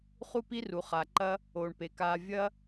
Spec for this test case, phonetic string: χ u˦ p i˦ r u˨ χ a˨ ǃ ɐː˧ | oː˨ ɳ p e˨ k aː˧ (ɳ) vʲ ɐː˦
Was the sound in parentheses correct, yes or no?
no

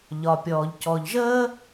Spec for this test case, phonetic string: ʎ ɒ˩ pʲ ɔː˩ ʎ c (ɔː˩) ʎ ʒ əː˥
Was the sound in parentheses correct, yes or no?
no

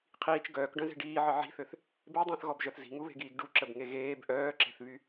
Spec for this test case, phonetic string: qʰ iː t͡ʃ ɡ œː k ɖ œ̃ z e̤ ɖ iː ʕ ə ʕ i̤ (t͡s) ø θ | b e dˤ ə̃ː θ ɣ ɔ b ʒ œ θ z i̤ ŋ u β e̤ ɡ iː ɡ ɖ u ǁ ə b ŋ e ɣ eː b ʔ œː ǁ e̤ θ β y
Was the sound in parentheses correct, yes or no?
no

